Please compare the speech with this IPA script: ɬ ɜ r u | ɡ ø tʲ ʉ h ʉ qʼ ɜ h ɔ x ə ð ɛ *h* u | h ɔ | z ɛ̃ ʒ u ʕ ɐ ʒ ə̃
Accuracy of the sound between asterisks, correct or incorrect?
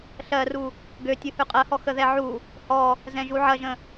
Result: incorrect